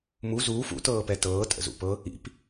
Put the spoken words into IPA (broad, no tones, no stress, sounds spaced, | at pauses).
m u z uː f ṵ t ɤː p ɛ t ɤː tʼ ə̰ z ṵ p ɤ | ḭ p